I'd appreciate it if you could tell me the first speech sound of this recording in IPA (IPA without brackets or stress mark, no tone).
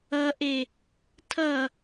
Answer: ʌ